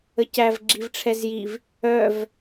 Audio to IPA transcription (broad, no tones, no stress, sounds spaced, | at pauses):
ə c æ v ɡ͡ǁ i v ʈ͡ʂʰ ɛ z j i v | œ v